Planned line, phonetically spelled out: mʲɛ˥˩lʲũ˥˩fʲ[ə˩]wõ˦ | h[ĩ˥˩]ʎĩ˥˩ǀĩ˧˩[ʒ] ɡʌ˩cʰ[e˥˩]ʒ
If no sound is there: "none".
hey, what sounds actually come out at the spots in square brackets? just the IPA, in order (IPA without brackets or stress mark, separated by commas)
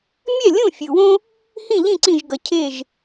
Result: ɯ˩, ĩ˥˩, ʒ, e˥˩